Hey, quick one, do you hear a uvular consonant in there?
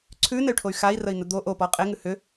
yes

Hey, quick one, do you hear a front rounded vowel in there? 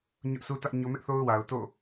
no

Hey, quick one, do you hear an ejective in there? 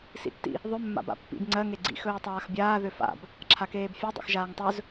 no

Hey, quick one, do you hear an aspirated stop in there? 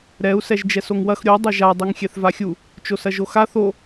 no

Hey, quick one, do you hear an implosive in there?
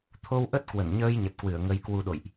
yes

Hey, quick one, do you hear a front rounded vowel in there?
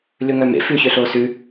yes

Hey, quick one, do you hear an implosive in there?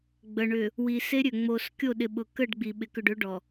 yes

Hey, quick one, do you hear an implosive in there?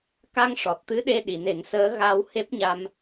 yes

